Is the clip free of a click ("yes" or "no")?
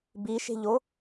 yes